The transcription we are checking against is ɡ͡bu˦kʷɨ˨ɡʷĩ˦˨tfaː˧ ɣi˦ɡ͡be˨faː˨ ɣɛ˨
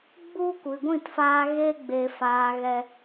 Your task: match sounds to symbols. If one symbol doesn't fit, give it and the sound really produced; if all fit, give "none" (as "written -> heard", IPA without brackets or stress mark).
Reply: i˦ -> e˦